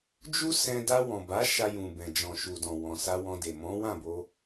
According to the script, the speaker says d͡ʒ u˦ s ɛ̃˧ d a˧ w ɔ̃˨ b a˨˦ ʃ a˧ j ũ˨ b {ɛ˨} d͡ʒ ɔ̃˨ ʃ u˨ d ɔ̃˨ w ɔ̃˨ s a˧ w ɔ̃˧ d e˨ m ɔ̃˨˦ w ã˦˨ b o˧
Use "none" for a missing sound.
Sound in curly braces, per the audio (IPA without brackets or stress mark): ɛ̃˨